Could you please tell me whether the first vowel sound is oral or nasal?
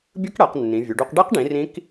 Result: oral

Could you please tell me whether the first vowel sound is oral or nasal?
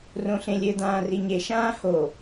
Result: nasal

